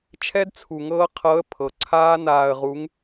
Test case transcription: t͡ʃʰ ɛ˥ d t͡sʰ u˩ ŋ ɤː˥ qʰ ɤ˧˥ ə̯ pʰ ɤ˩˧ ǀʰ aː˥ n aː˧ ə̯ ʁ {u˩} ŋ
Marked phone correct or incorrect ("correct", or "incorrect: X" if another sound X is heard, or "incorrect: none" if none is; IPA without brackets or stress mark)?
incorrect: u˧˥